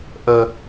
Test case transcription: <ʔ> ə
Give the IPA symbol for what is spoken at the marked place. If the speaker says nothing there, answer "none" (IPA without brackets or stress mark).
ʔ